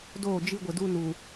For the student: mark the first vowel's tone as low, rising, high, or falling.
falling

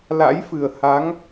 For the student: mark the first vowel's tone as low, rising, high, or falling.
rising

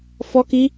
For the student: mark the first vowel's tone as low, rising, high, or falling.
high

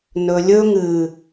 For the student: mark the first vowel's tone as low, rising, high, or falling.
low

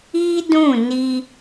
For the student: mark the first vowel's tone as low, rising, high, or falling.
high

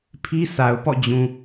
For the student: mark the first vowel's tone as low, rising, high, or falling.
high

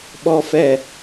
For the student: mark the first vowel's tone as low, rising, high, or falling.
high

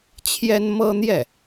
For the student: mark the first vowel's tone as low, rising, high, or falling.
high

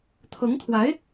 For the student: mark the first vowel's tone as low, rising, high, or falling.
rising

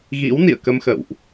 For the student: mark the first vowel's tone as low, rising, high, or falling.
rising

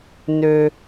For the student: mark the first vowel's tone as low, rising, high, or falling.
low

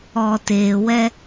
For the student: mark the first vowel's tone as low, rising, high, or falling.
low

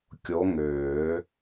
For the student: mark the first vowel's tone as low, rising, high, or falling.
rising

